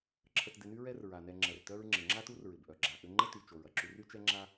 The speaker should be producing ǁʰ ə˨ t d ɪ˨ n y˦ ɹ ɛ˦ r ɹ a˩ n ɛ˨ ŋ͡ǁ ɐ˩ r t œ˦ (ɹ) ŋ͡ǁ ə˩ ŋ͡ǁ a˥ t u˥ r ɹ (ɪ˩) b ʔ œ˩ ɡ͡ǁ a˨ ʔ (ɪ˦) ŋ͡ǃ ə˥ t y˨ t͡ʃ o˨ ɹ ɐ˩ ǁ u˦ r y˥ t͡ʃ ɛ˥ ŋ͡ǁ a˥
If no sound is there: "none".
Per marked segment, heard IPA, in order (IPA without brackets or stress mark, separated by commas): ɹ, ɪ˩, ʏ˦